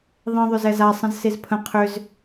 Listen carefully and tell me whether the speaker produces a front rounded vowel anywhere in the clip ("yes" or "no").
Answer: yes